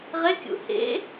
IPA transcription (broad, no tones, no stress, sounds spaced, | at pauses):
ʁ e kʲ ṵ h ḛ